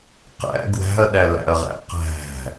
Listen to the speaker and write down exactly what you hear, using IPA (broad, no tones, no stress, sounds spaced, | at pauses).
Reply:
q æ̰ ɡ w æ̤ ɐ̯ ɗ æ l æ̰ ɐ̯ ʁ æ̰ q æ̤